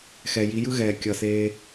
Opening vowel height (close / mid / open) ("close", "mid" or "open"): mid